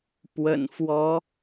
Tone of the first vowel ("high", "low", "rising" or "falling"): low